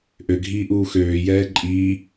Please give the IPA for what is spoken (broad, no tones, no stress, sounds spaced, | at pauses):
ʔ ø ɡʱ iː ʔ uː x øː j ɛː ǃʼ iː